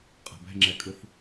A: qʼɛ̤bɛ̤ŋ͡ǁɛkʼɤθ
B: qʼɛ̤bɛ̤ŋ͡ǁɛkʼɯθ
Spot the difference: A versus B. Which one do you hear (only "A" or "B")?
B